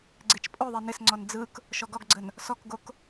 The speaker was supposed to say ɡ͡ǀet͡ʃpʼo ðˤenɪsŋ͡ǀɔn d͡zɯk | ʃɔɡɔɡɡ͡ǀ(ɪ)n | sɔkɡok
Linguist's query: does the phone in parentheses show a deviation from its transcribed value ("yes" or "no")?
yes